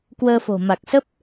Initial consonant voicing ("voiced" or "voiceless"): voiceless